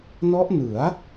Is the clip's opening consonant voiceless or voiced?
voiced